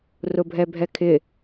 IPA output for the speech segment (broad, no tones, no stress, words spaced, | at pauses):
rʊbʱɛbʱɛkʰɪ